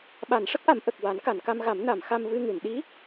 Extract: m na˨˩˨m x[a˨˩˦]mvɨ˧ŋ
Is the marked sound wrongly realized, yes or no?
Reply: yes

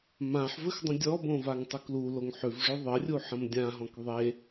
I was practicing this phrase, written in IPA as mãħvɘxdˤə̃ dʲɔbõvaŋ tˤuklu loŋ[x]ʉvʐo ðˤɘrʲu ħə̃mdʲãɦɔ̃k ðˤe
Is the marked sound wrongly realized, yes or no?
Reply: yes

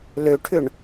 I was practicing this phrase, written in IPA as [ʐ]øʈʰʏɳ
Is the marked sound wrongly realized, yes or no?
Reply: yes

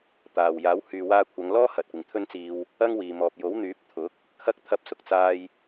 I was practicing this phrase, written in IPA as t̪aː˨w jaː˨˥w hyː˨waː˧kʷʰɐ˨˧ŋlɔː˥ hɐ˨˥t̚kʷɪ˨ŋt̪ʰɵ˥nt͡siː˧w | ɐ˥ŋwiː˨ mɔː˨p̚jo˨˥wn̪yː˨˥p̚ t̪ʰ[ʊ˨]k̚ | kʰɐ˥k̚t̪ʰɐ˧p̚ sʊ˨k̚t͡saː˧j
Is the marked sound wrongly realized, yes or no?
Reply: yes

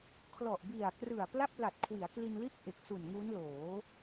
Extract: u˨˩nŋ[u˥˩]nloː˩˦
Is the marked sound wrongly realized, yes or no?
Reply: yes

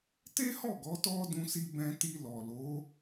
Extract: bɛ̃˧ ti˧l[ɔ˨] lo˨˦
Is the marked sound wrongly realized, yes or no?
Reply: no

